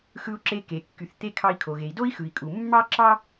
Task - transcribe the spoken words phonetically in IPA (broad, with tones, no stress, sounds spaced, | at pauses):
x ɯ˧ u̯ ǁ e˧ k e˩ kː y˩ θ t̪ e˧ kʰ ɑ˧ i̯ kʰ o˩ ɣ e˩ i̯ d o˥ i̯ x ɯ˩ i̯ kʼ u˩ mː ɑ˥ ǁ ɑ˥